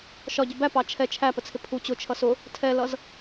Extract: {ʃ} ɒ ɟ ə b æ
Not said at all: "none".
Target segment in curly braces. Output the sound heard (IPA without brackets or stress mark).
ʃ